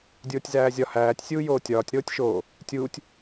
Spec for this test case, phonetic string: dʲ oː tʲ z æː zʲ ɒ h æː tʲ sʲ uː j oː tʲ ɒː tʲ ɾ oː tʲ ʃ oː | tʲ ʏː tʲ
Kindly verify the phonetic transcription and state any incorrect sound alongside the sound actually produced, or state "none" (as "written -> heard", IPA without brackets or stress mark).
ʏː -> uː